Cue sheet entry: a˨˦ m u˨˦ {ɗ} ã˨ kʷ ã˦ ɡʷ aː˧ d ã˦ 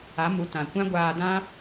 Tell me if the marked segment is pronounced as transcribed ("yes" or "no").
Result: no